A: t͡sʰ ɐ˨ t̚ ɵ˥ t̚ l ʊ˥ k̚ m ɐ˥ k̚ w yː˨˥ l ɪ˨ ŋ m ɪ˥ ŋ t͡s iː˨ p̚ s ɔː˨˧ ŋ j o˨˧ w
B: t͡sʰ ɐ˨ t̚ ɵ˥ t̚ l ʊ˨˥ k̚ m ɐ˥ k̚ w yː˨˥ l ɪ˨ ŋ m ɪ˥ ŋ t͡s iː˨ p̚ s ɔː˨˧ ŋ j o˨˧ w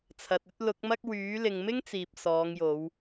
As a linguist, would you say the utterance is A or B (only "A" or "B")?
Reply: B